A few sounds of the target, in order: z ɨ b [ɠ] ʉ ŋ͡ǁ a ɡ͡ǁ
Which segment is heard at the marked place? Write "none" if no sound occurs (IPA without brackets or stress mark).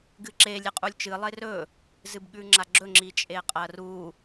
ɠ